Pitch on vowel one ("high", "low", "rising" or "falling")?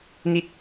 falling